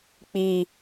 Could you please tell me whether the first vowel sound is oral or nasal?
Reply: oral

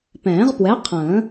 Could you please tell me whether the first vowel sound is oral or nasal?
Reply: nasal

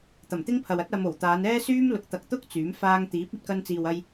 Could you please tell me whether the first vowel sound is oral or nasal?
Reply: oral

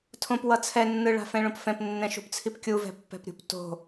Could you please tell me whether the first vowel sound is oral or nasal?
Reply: nasal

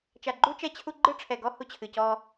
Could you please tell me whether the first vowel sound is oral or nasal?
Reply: oral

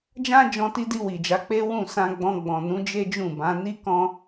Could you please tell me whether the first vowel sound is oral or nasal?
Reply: nasal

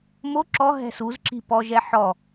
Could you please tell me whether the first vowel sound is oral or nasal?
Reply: oral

